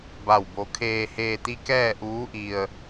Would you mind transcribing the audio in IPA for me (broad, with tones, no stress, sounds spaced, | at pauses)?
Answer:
b a˥˨ w b o˧˥ kʰ eː˧ h eː˧ t̪ i˧˥ k ɛː˥˨ ʔ uː˧˥ ʔ i˧ ə̯